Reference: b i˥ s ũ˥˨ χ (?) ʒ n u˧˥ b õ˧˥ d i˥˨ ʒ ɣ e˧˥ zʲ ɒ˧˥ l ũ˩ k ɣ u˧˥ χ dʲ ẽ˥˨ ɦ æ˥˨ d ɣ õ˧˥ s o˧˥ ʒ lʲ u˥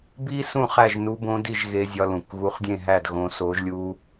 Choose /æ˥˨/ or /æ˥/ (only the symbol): æ˥˨